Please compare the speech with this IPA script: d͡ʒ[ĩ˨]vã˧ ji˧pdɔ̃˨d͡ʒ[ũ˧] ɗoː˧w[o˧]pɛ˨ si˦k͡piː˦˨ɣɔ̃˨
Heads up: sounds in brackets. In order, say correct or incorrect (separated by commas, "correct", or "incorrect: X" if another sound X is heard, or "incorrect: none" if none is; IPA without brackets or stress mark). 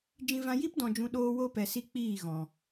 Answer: incorrect: ĩ˧, incorrect: ũ˨, correct